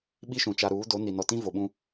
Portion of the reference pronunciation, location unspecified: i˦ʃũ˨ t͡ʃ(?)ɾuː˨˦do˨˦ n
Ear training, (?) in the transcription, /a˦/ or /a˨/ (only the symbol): a˨